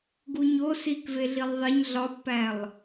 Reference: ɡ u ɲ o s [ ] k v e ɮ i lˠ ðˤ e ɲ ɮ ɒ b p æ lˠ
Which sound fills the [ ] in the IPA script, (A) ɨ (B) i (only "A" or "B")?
B